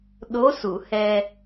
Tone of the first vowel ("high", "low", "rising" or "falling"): rising